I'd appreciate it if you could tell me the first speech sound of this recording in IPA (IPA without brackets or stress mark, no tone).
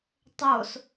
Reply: tˤ